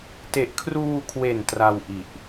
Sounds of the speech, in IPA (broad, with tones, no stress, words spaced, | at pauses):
te˨˩ʔkʰruː˧kʰwe˨˩n tra˧wʔi˨˩ʔ